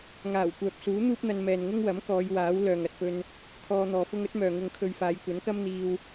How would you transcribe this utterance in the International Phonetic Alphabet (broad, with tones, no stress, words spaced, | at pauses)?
ŋaː˨˩w kʷœː˨p̚suː˨˥ n̪uː˥p̚n̪ɐ˧nmɛː˨n ŋʊ˥ŋwɐ˨˥m kɔː˨˧jwaː˨˥w lœː˨ŋɐ˨t̚pɵ˧n | kʰɔː˧n̪ɔː˨fʊ˥ŋ ɵ˥t̚mœː˨ŋʊ˧ŋkʰɵ˧ɥ faː˨˧jkʷɐ˨˥nkɐ˥m n̪iː˧w